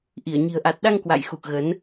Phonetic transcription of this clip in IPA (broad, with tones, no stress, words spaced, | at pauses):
ʔi˧˩ə̯ɲi̤˨˩ə̯ʔa˨˩t̚ɗa˧ŋ kwa̰˧˨jxu˨˩k̚ɣə˨˦n